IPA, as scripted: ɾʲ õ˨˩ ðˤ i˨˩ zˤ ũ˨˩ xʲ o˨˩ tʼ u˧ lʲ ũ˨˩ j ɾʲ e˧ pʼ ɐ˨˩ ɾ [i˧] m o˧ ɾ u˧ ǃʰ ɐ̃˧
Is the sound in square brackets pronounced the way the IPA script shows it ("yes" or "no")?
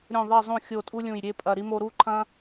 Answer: yes